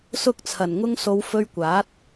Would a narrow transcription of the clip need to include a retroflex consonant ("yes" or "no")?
no